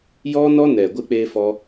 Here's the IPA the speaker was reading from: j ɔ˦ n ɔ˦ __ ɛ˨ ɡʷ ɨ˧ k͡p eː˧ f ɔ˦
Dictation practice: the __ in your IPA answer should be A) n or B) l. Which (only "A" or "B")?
A